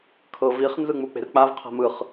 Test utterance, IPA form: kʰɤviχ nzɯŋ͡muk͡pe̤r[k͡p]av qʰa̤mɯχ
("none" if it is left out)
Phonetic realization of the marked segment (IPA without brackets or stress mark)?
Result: k͡p